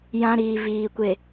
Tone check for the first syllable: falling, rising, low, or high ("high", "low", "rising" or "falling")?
high